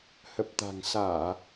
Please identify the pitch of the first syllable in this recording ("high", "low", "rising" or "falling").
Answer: low